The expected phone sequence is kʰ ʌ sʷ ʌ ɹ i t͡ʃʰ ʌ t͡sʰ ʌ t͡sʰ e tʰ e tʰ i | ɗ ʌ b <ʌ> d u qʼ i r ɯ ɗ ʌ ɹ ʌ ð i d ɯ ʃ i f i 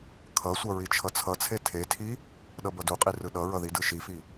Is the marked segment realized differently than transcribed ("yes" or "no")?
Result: no